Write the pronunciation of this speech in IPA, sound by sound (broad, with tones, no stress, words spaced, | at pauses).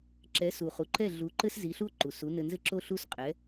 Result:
ǁɛ˩˥su˩χu˩ǃɛ˥˩ ɮu˩˥ǃɘ˥s zi˩˥ɬu˥o̯ ǃu˩su˩˥ nɘ˧nzɘ˥ǁo˥ɬu˥s qʼɛ˩˥